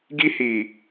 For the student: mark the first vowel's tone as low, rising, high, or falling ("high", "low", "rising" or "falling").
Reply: high